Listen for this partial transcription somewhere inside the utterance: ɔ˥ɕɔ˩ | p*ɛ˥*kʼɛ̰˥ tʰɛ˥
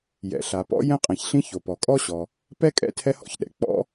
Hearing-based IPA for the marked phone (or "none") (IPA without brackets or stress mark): ɛ˥